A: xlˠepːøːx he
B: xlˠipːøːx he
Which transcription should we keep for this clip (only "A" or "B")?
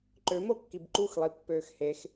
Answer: B